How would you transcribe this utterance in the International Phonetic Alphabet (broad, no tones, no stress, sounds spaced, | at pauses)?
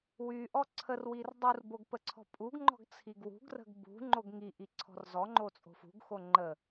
w y ʔ ɔ ǀʰ ə r w i r dˤ u r b o ɡ p ə ǀʰ ɔ̤ pʼ u ɡ ŋ͡ǃ ɔ̤ ɡ t͡sʰ i ɡ w ṳ ɡ r ə̤ ɡ b ṳ ŋ͡ǃ o ɡ ŋ i ʔ i ǀʰ ɔ̤ r z ɔ ŋ͡ǃ o t͡sʼ o̤ f ṳ ɡ x o ŋ͡ǃ ə